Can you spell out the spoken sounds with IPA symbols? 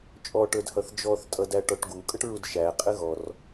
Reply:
t͡ʃʼ ɔ ʈ ə˞ d h ʌ θ d͡ʒ ɔ θ tʼ ʌ d æ ʈ ɔ ʈ ɡ u kʼ ə ʈ ɹ u d ʃ æ qʼ ɪ ɣ ɔ r

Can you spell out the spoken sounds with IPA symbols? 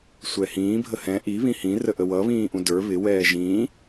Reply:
sʷ ɛ h ĩː bʱ ə h ɛ̃ ʔ i β ĩ h ĩ r ə ʔ ə w ʌ β ĩː ʔ ũ d ə˞ β ɪ w ɛː ʒ ĩ

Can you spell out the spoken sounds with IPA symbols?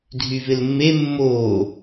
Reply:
dʱ y v ɪ l mː e mː oː

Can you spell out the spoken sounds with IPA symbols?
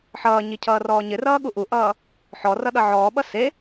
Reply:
ħ ʌː ɲ i cʰ ʌː r ɔː ɲ ɪ r ʌː ɠ u ʔ u ʔ ʌː | ħ ɔ r ʌ ɗ ʌ ʕ ɔː ɓ ʌ s e

